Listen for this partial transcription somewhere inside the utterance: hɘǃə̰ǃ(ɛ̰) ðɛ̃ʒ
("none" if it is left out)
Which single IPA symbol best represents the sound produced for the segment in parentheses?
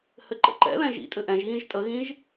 ɛ̰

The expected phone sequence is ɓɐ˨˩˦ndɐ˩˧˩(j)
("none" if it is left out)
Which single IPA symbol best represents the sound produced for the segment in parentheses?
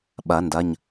ɲ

